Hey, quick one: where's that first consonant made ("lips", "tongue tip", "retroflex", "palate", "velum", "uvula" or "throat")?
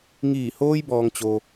velum